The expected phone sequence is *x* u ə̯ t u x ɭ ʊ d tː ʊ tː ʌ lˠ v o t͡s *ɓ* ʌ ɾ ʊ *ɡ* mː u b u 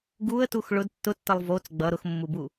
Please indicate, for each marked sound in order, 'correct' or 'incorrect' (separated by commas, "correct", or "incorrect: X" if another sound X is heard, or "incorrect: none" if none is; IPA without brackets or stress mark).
incorrect: ɡ, incorrect: ɡ͡b, incorrect: x